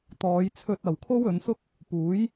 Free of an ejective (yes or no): yes